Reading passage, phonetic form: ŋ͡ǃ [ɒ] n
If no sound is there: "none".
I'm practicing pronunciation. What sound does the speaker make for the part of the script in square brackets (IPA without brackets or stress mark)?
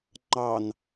ɑ